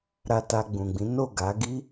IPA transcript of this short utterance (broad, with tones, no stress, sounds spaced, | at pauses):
ɾ a˧ t a˧ ɡ͡b ũ˨ ɡ͡b ĩ˨˦ n o˦˨ ɡ a˨˦ ɡ i˦